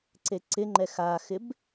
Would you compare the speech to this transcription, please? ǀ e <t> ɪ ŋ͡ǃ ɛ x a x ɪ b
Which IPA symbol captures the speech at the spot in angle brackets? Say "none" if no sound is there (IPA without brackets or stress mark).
ǀ